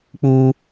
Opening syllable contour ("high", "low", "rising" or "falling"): high